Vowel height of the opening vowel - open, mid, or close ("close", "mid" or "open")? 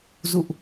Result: close